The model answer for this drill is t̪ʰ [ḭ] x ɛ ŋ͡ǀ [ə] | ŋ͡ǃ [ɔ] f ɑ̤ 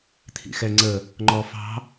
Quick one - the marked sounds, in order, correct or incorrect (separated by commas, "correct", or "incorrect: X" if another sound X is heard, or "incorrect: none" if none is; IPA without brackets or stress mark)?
correct, correct, correct